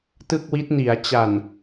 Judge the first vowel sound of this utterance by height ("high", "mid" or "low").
high